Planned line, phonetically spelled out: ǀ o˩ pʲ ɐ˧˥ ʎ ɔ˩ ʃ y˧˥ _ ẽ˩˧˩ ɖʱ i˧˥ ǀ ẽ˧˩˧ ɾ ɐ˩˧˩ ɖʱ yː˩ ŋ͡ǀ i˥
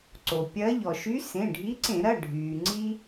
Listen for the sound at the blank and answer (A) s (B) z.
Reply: A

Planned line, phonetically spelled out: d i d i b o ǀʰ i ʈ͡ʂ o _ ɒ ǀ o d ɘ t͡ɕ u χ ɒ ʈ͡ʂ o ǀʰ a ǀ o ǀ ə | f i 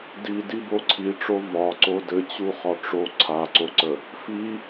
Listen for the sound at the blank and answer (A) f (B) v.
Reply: B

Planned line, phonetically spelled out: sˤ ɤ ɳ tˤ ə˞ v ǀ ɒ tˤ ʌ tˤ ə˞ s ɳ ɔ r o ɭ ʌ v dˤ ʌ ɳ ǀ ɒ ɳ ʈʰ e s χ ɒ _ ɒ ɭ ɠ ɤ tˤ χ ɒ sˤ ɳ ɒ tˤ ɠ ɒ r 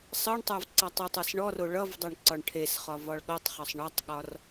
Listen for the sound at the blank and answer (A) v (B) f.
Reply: A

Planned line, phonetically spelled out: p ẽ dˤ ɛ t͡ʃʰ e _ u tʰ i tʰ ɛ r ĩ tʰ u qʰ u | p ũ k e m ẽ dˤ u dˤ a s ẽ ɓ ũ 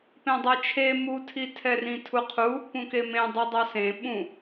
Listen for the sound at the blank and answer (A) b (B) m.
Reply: B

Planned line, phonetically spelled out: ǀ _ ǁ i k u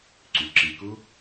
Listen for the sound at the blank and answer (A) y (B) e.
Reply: A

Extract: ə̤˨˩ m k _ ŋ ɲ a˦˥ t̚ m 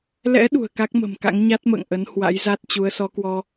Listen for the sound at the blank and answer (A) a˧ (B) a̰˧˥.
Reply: B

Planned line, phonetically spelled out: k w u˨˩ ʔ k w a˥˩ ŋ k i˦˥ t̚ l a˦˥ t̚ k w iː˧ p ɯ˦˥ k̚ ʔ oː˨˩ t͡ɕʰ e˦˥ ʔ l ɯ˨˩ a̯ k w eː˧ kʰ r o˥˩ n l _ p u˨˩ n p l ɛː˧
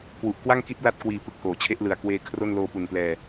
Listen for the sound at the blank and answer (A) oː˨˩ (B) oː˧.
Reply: B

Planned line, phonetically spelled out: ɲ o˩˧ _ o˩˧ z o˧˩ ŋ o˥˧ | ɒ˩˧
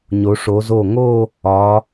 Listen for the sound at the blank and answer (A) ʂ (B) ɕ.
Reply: A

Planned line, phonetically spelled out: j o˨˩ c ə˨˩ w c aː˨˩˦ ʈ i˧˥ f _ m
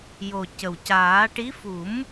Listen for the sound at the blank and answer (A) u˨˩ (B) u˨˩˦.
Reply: B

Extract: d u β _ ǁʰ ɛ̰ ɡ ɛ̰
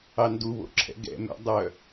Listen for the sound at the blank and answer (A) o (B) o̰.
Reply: B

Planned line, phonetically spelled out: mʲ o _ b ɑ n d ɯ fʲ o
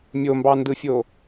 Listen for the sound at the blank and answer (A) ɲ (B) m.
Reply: B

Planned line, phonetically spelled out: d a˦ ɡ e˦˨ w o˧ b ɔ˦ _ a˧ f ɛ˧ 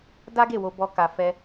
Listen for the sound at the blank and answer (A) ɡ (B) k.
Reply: B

